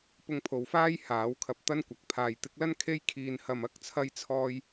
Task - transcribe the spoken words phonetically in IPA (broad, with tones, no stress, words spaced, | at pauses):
pʊ˧ŋpʰo˨wfaː˥j haː˨˥wkʰɐ˧p̚ t̪ɐ˥nkʷɐ˨˥k̚ pʰaː˨jt̪ɪ˨˥k̚lɐ˥n kʰe˥j kʰiː˨nhɐ˨m ɐ˥k̚t͡sʰɐ˧jt͡sʰɔː˧j